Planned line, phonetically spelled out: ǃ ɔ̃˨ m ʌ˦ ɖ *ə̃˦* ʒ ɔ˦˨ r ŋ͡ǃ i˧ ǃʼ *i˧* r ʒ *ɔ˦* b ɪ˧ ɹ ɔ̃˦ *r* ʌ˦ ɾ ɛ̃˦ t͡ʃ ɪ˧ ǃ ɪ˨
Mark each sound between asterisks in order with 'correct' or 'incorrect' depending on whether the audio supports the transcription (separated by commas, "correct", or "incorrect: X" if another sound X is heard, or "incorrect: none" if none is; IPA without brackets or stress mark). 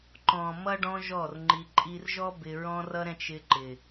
incorrect: ɔ̃˦, incorrect: i˦, correct, correct